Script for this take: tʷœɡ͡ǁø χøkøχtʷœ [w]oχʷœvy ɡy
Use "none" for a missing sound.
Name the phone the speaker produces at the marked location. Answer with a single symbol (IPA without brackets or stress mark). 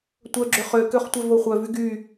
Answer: v